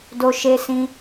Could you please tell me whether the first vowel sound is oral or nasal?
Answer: oral